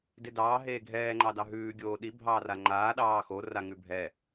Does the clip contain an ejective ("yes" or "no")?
no